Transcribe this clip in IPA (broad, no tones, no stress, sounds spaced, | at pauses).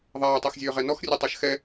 ðˤ aː tˤ ɛ x zʲ øː ʁ ɛ n ɔ x rʲ ɛ tˤ ɑ ʃ x ɛ